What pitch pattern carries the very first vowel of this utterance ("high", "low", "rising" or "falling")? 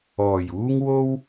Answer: low